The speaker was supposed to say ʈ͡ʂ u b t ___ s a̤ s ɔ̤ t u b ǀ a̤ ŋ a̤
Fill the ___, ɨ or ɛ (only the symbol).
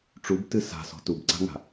ɨ